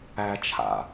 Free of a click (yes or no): yes